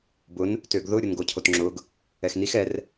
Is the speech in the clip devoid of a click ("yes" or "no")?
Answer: no